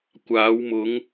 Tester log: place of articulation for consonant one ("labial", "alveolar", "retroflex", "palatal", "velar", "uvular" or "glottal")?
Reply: velar